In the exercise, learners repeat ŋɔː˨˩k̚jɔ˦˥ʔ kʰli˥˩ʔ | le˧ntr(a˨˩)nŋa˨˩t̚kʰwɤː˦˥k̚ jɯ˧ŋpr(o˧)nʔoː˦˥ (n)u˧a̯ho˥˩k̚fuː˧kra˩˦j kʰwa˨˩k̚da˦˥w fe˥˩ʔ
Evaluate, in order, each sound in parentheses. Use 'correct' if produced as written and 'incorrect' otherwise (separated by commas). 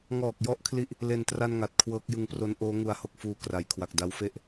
incorrect, incorrect, incorrect